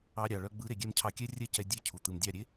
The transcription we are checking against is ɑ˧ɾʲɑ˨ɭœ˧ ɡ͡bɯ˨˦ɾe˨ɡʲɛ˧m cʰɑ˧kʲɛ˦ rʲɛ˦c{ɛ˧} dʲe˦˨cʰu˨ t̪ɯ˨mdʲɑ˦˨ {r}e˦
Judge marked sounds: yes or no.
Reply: yes, no

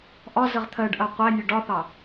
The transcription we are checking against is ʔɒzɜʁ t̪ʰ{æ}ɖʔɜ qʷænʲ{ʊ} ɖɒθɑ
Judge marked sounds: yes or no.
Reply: no, yes

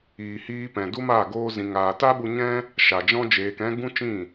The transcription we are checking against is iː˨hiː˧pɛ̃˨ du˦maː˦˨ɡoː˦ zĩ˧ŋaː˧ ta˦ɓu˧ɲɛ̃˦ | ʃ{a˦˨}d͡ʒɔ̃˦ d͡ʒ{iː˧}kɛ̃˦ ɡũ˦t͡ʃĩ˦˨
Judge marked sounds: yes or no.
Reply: no, no

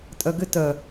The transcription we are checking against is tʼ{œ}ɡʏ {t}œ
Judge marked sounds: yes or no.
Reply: yes, yes

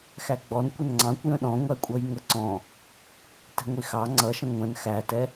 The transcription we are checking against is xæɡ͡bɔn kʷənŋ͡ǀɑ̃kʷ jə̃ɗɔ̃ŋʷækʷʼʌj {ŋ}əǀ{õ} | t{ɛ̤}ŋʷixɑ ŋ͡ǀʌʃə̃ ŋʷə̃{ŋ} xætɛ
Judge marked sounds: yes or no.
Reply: yes, no, yes, no

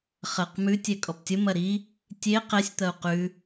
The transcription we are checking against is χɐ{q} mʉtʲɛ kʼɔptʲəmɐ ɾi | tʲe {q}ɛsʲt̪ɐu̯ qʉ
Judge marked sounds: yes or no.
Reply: yes, yes

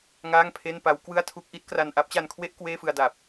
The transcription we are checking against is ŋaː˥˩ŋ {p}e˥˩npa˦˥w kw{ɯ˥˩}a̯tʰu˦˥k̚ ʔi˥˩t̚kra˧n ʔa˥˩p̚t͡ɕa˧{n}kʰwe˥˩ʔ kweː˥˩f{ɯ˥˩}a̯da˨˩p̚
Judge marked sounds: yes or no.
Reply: no, yes, yes, no

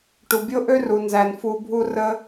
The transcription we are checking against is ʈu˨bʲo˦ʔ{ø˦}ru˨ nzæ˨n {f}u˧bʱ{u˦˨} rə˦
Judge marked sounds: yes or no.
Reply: yes, yes, no

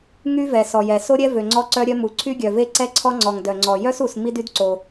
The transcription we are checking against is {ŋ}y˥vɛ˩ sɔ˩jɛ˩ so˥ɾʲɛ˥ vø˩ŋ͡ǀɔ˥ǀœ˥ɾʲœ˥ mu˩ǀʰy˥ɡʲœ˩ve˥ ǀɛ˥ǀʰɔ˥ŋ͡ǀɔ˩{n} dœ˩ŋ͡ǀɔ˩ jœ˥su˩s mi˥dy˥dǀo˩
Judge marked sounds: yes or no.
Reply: yes, no

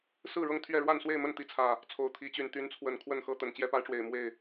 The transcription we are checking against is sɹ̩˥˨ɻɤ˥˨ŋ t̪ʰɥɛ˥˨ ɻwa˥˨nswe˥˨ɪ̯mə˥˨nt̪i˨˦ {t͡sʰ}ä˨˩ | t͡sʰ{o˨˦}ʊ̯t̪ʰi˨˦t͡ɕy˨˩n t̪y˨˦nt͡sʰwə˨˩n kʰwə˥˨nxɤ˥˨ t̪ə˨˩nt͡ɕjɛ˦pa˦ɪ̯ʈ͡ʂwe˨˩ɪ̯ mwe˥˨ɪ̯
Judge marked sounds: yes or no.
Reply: yes, no

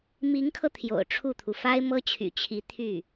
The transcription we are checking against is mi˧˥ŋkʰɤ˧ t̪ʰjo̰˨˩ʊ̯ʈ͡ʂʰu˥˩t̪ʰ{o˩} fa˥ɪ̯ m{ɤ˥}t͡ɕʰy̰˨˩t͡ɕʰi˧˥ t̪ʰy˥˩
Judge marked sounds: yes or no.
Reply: no, yes

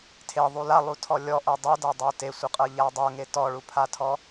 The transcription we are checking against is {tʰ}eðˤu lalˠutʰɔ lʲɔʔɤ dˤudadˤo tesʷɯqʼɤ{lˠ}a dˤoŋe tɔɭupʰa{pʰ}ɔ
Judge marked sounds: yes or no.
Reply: yes, no, no

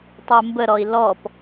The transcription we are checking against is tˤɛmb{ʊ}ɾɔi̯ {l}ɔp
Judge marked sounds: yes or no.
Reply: no, yes

